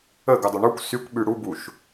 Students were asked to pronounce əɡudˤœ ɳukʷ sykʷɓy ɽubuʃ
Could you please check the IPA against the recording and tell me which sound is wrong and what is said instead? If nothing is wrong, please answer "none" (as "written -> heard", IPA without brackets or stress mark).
œ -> ɵ